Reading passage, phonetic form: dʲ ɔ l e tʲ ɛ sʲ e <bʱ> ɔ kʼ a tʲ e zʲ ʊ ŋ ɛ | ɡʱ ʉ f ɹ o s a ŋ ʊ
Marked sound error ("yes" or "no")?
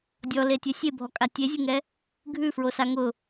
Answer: no